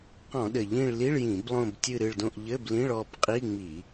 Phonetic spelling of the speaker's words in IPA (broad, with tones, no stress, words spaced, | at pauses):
qɔ̃˧˩˧ɗɘ˨˩ ʎĩ˦˨ɭli˧˥˧ɭjĩ˧˩˧b lˠõ˦˨btʲɨ˦˨ɾɨ˦˨ɭdõ˦˨ʔ ʎɘ˧˥˧blĩ˧˥˧ɭ ɔ˦˨b qʼi˧˥˧ŋ͡mi˧˩˧